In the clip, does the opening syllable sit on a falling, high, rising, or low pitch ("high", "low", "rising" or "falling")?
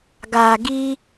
low